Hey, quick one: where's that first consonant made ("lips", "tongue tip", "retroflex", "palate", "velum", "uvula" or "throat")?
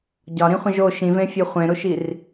palate